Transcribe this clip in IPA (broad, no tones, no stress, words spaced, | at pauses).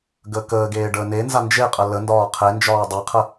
ɡəkəːɡeː ɖəːnenza nd͡ʒeqʼə lə ndɒːqʰend͡ʒɒː dˤɛqʰə